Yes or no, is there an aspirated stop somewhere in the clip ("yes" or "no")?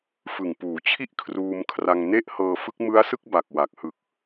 yes